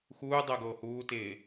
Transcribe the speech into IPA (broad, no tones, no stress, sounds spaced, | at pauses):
x uː dˤ ʊː ɡ oː h uː t ɪː